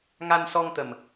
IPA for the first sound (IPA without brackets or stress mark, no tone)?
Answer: ŋ